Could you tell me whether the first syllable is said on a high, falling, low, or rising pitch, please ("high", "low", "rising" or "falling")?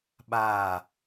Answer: falling